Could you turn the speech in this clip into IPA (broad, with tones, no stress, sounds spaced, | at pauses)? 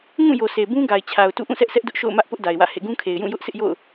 ŋ ũ˦˨ j o˨ sʰ e˨ b ũ˦ ɡ a˨ ɪ̯ t͡ɕʰ a˨ ʊ̯ t ṵ˦˨ ʔ ũ˦˨ sʰ ɛ˦ ʔ s ɛ˦ ʔ d ʊ˦ ʔ ʃ o̰˦˨ ʊ̯ m ä˦ ʔ p ʊ˦ ʔ d a˨ ɪ̯ w ä̰˦˨ h ḛ˦˨ ɡ ũ˦ kʰ e˨ ɪ̯ j ũ˦˨ j ʊ˦ ʔ sʰ ɪ˦ ʔ j o̰˦˨ ʊ̯